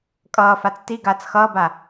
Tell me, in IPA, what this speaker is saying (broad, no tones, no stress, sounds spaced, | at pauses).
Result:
kʼ ʌː f a t͡s t i ɡ aː t͡s x ʌː b a